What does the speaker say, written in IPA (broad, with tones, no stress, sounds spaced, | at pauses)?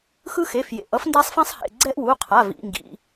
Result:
x ɯ˦ x e˩˧˩ f j ḛ˩˧˩ ʔ ʌ˦ f n d a˦ sˤ f ĩ˦ sˤ h ḛ˩˧˩ ɡ͡ǀ ɛ˦ ʔ w u˩˧˩ qʰ a˩˧˩ v ḭ˩˧˩ ŋ ɡ ḭ˩˧˩